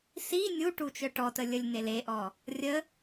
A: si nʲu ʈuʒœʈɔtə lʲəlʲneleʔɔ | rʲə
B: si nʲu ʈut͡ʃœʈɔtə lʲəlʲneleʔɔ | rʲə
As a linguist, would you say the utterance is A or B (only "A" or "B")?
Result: B